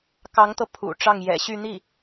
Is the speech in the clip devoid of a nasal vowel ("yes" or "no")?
yes